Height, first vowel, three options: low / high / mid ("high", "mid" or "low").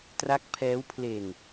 low